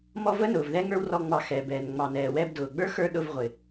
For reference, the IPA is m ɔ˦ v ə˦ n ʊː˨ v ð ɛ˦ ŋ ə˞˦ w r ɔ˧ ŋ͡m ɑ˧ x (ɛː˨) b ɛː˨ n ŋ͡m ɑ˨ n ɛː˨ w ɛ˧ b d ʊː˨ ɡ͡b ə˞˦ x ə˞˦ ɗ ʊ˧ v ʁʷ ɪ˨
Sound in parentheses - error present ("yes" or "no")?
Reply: yes